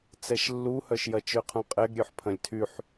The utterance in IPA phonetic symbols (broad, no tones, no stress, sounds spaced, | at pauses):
t͡s ɛ ʃ lː u h œ ʃ j ɐ t͡ʃ ø qʰ ũ qʼ ɛ ɡ ɾʲ ø ħ pʰ ɐ̃ lʲ tʰ y ħ